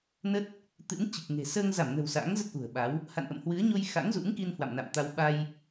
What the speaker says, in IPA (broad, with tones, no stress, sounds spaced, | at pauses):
n ə˦˥ t̚ | t̪ ɨ̰˧˥ n t͡ɕ i˨˩ k̚ ŋ e̤˨˩ s əː˧ ŋ z a˧˩ m n ə̤˨˩ w s a̰ː˧˥ ŋ z ə˦˥ t̚ ʔ ṳ˨˩ ə̯ ɓ a˨˦ w | h a̰˧˨ n ʔ ə̰˧˨ m h w ɨ˨˦ ə̯ ɲ o˧ j x a̰˧˥ ŋ z ṵ˧˥ ŋ k i˧ n h w a̰˧˨ m n a̰˧˨ m t̪ a˧ w ɓ a˧ j